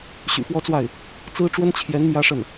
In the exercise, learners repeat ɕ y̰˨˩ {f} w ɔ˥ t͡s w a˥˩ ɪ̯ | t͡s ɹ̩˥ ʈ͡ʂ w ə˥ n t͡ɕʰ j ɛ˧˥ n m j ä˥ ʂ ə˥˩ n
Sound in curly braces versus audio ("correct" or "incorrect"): correct